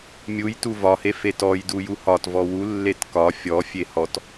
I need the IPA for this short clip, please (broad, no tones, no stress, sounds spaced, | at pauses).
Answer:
mʲ u j t u v ɒ h e f e t ɔ j d u j u h ɒ t v ɔ w u lː e t k ɒ fʲ ɔ fʲ e h ɔ t